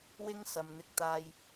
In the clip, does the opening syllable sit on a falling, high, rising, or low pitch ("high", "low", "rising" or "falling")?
high